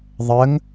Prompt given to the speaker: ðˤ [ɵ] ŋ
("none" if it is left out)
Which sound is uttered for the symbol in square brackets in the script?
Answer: ə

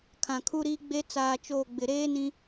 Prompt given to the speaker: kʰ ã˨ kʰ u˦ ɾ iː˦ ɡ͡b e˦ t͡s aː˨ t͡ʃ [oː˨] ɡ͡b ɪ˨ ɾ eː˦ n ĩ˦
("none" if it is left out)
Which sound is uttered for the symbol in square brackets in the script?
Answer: oː˨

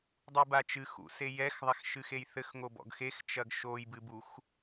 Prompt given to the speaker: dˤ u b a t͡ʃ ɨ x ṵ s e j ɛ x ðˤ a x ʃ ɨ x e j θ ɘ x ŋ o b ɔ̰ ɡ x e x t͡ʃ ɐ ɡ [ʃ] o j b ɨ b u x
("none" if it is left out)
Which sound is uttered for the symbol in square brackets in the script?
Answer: ʃ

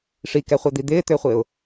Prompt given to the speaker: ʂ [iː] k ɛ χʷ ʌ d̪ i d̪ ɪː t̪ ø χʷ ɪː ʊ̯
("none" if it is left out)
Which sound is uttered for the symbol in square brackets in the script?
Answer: i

